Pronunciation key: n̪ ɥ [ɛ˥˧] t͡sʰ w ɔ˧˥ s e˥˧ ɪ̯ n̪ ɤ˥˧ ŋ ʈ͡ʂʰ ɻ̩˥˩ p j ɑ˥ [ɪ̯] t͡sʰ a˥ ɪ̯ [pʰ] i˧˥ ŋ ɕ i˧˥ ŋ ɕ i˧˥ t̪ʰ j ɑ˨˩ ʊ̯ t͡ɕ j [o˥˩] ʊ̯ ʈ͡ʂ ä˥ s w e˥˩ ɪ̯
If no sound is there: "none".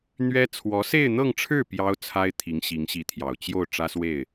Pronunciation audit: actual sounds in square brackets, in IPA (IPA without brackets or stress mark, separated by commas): ɛ˥, ʊ̯, t̪ʰ, o˥˩